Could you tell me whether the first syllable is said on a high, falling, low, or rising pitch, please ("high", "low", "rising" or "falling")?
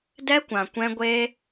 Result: high